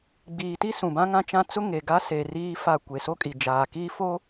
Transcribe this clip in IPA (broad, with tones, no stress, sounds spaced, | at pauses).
ɡ͡b iː˨ t i˦ s ũ˨ b ã˦ ŋ ã˦ t͡ʃ ã˦ t͡s ʊ˦ ŋ e˨ ɡ a˦ s e˨ r iː˦ f a˦˨ kʷ e˨ s o˦ kʼ i˨ d͡ʒ aː˨ k iː˦ f o˦